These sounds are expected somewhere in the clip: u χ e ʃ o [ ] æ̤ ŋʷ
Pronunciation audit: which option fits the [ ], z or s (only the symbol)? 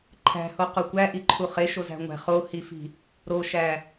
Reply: z